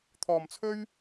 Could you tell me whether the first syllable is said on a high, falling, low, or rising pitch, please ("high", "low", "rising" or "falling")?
low